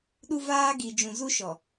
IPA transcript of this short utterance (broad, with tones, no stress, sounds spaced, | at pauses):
ɗ u˦ v aː˦ ɡ i˨ d͡ʒ ũ˨ z u˦ ʃ ɔ˨